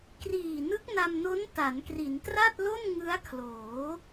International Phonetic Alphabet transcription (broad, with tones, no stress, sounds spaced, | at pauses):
k r iː˨˩ n ɯ˦˥ k̚ n a˧ m n o˦˥ n t a˩˦ n k r i˩˦ n t r a˥˩ t̚ l o˥˩ n ŋ ɯ˦˥ a̯ kʰ l oː˩˦